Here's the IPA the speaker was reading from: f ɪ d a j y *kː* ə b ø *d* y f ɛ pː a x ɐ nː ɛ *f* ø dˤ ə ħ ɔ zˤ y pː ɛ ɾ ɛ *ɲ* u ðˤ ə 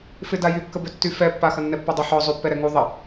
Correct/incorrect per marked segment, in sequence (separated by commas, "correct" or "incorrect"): correct, incorrect, incorrect, incorrect